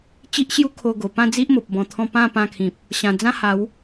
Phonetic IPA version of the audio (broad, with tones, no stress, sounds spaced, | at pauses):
t͡ɕ i˦ ʔ ɕ j u˦ kʰ o˧ ɡ o˨˩ p ã˥˧ d͡z i˦ ʔ m o˨ p̚ b ɔ̃˧ t̪ʰ ɔ̃˥˧ p ã˥˧ p ã˧ kʰ ĩ˨ p̚ | ɕ ã˨˩ d͡z ã˦ h a˨˦ w